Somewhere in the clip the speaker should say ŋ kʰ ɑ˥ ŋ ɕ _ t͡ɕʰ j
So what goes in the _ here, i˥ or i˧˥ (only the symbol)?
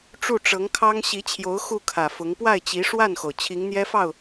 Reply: i˧˥